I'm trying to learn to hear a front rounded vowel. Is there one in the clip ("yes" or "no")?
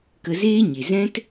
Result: no